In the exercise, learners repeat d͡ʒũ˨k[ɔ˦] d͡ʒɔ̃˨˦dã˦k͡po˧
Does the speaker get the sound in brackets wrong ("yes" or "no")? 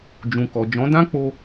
yes